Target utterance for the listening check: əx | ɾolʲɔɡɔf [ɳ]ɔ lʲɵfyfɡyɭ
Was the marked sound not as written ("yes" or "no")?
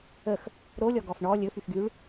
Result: no